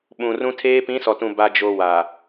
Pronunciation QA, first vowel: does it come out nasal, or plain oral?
nasal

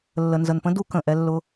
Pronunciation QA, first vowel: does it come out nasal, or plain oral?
oral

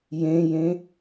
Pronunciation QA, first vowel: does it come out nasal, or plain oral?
nasal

